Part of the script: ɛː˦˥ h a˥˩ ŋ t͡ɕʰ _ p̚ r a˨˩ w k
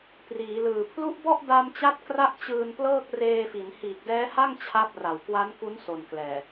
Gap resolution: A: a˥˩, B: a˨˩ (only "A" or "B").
A